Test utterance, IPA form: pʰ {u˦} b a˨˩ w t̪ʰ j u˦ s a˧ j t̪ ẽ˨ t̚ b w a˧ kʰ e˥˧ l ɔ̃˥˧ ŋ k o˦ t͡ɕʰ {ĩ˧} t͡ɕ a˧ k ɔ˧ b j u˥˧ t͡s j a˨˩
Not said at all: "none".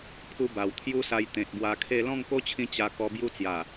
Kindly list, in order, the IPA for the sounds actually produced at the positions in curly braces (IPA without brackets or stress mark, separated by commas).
u˦, ĩ˧